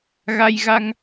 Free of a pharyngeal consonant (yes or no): yes